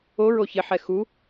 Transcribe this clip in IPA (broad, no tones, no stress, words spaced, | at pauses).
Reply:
oɹo çɪħɛ xu